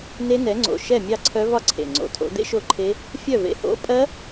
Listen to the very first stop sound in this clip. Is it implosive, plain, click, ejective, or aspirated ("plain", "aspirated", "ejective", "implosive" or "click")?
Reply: click